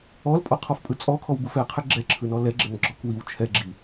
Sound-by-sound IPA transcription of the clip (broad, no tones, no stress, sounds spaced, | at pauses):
ɔ l pʼ ɔ qʰ ɔ f pʼ ɯ t͡sʼ ɔ kʰ ɔ w b ɯ f ɛ qʰ ɛ ɡ͡ǁ ɛ ǁʰ ɯ n ɔ l ɛ ɡ͡ǁ ɛ n ɡ͡ǁ ɔ k w i w t͡ʃʰ ɛ ɡ͡ǁ i